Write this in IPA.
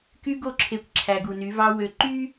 ky˦ɡo˦˨ǁʰe˨kʷ ǁʰæ˨ɡu˨ny˨˦vɑ˦ wø˨ ǃy˦

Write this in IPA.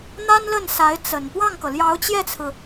n̪a˥nlə˥˩nsa˧˥ɪ̯ t͡sə˨˩n pwɑ˥˩ŋkɤ˩ljɑ˧˥ʊ̯ t͡ɕjɛ˥˩t͡sʰɹ̩˩

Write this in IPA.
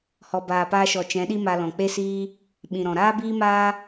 hɔ˨baː˨paː˧ʃɔ˨ t͡ʃɛ̃˨˦ɗi˦ma˧lɔ̃˨ k͡pe˦siː˦ | ɓĩ˨ɾɔ̃˨ ɾaː˦biː˦ maː˦

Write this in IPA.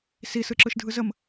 si sɯǁɯʃdʱɯzəm

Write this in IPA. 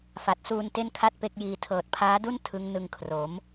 fa˨˩t̚suː˧n te˥˩nkʰa˥˩t̚pe˦˥k̚jiː˧ tʰɤː˨˩t̚pʰaː˦˥du˥˩n tʰɯ˦˥ŋnɯ˧ŋkʰro˩˦m

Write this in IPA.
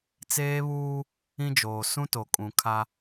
t͡seː˦βuː˦ | ĩ˦d͡ʒoː˨ sũ˦to˨kʼũ˨ kʰa˦

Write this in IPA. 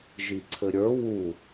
ʒiǀʰɘɾʲə˞ wu

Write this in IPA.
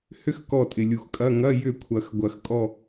hʏ˥x kɔ˦˨tʼɪ˨ lʲu˨xkʼɐ˧˥˧ ŋɐ˧˥˧jʏ˦˨kʷʰɐ˨˩˦x ɡʷɐ˨˩˦xkʼɔ˦˨

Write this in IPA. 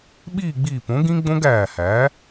ɓiː˥˨ ɡ͡biː˧˩põ˩˥ ɡĩ˦˥ɡ͡bõ˦˥ɡ æː˧˩hæ˩˥

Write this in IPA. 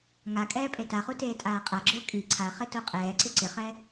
ŋa kʼɛːpʼetaχu teːtʼaːqʼaɡ͡ǁʊː kʼi ǀʰaχɪ toqʼɛːǀɪ ǀɪχɛ

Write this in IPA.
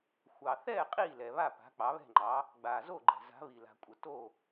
xʷɑ˨θɛː˥˨ qʼiː˥˨lɛ˨βa˥˨ pa̤˨˥k͡pɑ˨˥βɛ̤˥˨ŋ͡ǃɑ˨˥ | ɡ͡baː˨zo˥˨ɡ͡ǃɛ̤˨ za̤˨˥βi˨la̤˨kʷʼə˨ to˥˨

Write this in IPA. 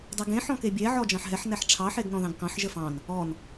dˤɛɡẽ ħɔ̃kebʲɛ ʕɔd͡ʒɑ̃ħɦɛħ nɛħʈ͡ʂʰɑ ħeɡnɔ̃ðɑ̃ɡkɑ̃ħ ʒəfɑ̃n | ɔn

